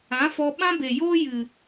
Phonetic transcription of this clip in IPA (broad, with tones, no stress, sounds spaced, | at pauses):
ã˨˦ f ɔ˧ ɓ ã˦ b e˨ j oː˦ j ɨ˨